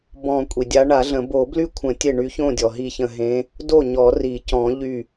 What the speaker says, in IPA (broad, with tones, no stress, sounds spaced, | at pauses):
b ɔ̃˧˩ kʷʼ i˩ dʲ a˨˦ ɳ a˨˩˦ ɮ ə̃˨˩˦ b o˨˩˦ b l y˥˩ kʷʰ ə̃˨˩˦ tʲ e˧˩ ɳ y˨˦ ç õ˥˩ dʲ ɔ˩ ɦ i˧˩ ç ə̃˧˩ ɦ ẽ˨˦ | d o˥˩ ɲ ɔ˨˩˦ r i˨˩˦ c ɔ̃˨˩˦ ʎ y˧˩